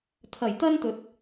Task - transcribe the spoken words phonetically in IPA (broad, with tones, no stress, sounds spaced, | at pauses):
t̪ʰ ɐ˨˩ j t̪ ɐ˥ n t̪ ɵ˨˥ t̚